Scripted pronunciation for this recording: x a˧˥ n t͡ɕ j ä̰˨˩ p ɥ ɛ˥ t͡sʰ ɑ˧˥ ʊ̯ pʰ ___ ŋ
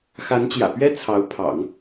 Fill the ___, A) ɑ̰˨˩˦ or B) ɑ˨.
A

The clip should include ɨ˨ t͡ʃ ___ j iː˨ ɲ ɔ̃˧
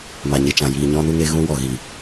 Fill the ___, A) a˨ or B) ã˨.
B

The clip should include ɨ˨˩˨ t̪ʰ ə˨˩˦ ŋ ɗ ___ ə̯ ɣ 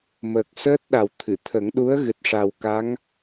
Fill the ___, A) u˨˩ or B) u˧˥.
B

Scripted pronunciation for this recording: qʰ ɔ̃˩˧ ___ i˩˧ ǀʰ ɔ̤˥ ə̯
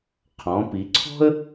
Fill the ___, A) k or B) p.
B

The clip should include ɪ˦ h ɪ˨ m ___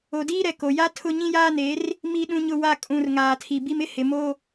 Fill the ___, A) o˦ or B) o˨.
A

